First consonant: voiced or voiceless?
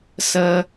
voiceless